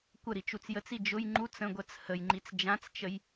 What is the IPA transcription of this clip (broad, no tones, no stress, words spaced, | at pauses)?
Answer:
kʷə ɾit͡ʃut͡sjət͡si d͡ʒʊj ŋ͡ǃut͡s ə̃ɡʷɜt͡s həjŋ͡ǃit͡s d͡ʒãt͡st͡ʃəj